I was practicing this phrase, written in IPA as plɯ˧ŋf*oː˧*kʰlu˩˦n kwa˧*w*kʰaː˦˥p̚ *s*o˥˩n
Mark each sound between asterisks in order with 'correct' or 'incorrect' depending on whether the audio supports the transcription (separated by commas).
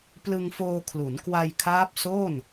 correct, incorrect, correct